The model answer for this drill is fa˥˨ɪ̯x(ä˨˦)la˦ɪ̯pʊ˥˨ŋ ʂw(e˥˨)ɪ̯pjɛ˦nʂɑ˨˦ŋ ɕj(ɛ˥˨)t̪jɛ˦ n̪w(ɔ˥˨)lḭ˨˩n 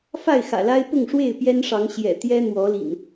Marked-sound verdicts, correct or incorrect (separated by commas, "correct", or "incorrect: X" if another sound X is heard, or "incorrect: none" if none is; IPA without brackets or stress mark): incorrect: ä̰˨˩, correct, incorrect: ɛ̰˨˩, incorrect: ɔ˨˦